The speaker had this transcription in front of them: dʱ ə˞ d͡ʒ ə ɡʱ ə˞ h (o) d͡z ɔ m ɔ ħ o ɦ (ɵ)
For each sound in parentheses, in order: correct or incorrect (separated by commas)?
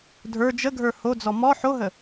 correct, incorrect